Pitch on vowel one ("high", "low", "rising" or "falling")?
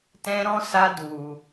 high